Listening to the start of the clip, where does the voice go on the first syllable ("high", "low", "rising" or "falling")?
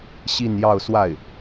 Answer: falling